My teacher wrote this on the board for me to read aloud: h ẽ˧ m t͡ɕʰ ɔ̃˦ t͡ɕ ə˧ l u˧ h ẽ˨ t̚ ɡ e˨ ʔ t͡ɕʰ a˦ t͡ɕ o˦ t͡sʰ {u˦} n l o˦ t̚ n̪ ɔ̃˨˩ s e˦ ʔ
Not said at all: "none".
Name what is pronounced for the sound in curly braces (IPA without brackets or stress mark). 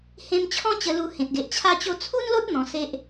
u˦